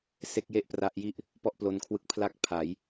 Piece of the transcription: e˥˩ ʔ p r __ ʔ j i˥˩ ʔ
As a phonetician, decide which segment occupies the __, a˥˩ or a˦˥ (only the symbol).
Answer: a˦˥